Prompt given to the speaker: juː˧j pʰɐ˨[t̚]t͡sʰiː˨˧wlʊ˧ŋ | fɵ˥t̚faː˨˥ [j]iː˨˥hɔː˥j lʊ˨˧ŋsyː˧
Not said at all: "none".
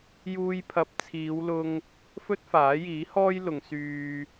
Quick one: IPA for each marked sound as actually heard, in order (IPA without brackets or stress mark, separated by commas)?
p̚, j